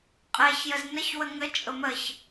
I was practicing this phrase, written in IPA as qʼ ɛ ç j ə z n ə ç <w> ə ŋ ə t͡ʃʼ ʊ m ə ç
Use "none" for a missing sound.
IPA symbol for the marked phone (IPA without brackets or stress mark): w